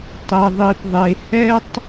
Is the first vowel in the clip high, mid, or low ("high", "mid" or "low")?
mid